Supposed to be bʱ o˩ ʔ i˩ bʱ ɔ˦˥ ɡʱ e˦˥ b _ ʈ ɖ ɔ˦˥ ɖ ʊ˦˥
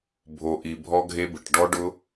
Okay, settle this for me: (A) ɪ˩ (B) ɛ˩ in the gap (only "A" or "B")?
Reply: A